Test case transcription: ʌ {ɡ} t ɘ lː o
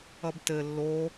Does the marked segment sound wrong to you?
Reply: yes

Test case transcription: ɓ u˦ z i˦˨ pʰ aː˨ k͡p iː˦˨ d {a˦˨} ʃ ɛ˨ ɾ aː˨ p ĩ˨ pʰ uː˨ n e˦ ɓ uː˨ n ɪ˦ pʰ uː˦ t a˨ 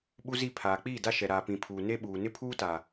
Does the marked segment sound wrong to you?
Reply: yes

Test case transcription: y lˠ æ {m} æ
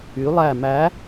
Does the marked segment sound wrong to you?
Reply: no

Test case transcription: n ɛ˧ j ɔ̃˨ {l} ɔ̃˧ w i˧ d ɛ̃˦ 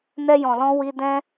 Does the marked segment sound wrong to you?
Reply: no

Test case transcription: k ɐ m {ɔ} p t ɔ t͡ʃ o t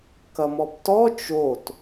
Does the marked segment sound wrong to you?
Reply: no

